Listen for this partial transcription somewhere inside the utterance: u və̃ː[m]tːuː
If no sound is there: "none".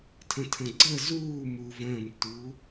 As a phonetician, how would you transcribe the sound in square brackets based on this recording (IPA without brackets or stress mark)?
m